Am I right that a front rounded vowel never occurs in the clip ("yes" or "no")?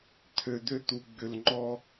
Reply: no